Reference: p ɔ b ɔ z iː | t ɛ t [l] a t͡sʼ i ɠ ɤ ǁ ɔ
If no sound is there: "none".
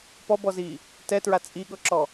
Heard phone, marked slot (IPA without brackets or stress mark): ɹ